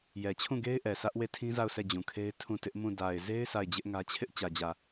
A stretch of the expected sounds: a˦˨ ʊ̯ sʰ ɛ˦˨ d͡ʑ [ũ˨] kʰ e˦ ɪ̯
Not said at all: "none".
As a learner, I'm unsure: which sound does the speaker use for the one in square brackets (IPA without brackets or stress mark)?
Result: ũ˨